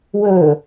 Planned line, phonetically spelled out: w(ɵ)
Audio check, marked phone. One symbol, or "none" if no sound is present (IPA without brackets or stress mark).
ɵ